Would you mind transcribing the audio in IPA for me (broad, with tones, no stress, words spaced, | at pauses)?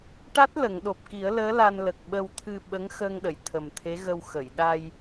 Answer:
ʈa˦˥t̚ lə˨˩˨ŋɗo˨˩p̚ki˨˩˦ə̯ləː˧˥ la˧nlə˨˩k̚ɓə˧w t̪ʰɨ˧ ɓə˧˥ŋxəː˧ŋɗə˨˩˨j t̪ʰə˨˩mt̪ʰe˧˥ɣə˧w xə˨˩˨j ɗa˧j